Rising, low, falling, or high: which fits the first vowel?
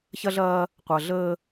high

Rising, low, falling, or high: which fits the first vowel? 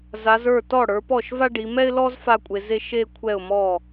rising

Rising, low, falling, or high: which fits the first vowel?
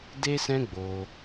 high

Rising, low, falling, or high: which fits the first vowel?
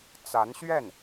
rising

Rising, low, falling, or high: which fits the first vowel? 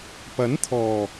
rising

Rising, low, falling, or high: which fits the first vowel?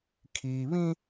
high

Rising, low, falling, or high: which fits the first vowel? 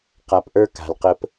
low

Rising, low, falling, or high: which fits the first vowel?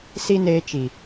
high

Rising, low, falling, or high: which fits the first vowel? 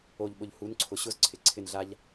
low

